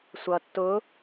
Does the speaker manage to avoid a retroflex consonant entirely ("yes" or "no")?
yes